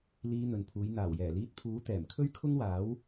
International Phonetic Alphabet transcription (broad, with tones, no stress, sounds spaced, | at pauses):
l iː˧ n̪ ɵ˨ n pʰ uː˨˧ j n̪ aː˨˩ w j ɛː˨˩ l iː˧ t̚ pʰ uː˨˥ t̪ ɛː˨˩ m kʰ ɵ˥ ɥ kʰ ʊ˥ ŋ w aː˨˥ w